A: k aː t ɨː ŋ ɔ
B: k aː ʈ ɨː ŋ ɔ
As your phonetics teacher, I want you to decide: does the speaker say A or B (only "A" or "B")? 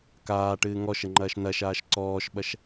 B